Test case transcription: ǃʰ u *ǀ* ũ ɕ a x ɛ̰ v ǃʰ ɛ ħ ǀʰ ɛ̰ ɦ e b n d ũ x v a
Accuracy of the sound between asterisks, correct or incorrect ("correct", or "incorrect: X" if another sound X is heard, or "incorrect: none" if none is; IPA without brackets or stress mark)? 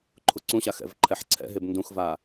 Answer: correct